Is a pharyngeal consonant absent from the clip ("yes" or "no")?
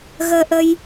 yes